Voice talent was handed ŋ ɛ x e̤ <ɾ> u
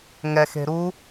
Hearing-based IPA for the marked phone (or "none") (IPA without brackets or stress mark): ɾ